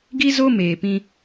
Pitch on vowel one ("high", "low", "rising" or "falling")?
high